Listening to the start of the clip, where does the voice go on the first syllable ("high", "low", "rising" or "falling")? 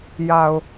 low